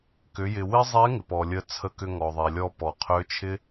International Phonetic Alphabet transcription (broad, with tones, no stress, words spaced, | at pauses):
kʏ˩˧jɪ˩wɪ˥ zˤe˧˥ ŋɪ˩pɔ˩lʲə˧˥ t͡sʰə˧kʏ˧ ŋɔ˩ðˤe˩lʲɔ˧ pɔ˩qʰø˧˥t͡ʃʰɪ˥